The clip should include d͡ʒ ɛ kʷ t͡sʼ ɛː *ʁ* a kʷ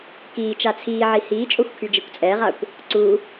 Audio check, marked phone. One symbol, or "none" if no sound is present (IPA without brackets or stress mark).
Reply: ʁ